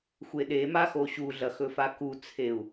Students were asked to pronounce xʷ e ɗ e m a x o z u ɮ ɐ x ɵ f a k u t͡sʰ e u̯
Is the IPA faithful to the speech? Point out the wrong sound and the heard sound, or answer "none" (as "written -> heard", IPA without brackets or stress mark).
z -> ɕ